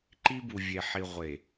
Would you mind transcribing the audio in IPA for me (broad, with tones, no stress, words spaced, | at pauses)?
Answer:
ǃi˦ bu˨vʲe˨ħi˨ ʁʷe˨